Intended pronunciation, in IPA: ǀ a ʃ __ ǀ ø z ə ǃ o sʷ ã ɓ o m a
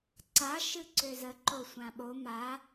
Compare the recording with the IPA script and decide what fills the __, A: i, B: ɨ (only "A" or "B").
B